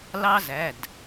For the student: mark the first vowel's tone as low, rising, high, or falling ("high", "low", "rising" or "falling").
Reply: high